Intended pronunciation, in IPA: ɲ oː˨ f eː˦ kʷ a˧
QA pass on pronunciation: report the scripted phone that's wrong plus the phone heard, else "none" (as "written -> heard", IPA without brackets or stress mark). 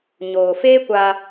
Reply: none